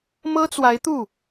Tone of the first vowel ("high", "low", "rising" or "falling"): high